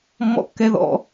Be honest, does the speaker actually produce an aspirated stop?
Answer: no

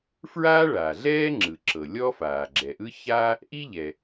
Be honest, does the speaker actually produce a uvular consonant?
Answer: no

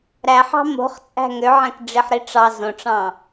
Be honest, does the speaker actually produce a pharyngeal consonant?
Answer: yes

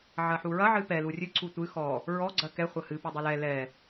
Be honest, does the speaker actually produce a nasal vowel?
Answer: no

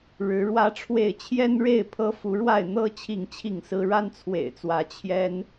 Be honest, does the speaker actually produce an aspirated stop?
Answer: yes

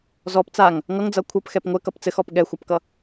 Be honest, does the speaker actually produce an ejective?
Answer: no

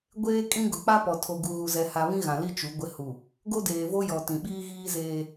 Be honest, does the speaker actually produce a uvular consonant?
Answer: no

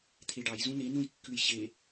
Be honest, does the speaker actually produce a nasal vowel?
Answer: yes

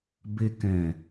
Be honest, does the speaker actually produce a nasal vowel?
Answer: yes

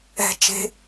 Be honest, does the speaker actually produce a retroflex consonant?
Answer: no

